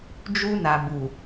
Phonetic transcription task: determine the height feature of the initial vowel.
high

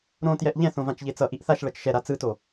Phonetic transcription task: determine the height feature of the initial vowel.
mid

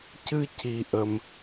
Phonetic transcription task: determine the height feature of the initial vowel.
high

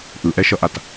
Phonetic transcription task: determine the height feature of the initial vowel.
high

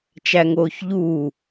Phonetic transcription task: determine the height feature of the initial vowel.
low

